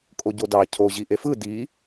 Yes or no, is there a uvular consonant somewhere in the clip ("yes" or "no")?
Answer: no